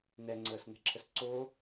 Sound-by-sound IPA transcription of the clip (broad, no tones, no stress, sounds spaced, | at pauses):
n ɛ ŋ͡ǀ əː s n ɛ̤ ǁʰ ə s ǀ o